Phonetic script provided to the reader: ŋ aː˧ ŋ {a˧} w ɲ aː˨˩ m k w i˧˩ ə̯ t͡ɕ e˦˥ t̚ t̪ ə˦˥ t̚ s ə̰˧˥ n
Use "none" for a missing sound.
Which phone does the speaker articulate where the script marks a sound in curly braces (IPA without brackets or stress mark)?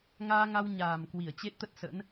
a˧